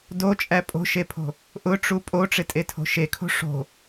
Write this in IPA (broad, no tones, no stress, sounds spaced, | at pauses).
d o t͡ʃʼ æ pʼ o̤ ʃ e pʰ o̤ | ʔ ʊ ʈ͡ʂ u pʼ o ʈ͡ʂ ɪ tʼ e tʰ o̤ ʃ e kʰ o̤ ʂ o̤